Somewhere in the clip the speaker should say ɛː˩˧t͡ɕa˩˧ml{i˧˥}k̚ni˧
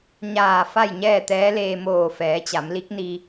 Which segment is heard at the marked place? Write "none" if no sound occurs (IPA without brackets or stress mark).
i˧˥